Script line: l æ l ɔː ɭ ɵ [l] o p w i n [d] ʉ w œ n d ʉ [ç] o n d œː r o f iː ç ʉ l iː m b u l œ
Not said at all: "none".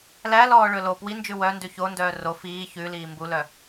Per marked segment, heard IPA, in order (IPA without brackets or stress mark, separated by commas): l, d͡ʒ, ç